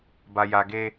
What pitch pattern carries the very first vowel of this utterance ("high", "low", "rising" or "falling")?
low